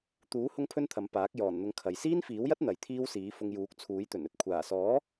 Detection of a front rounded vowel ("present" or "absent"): absent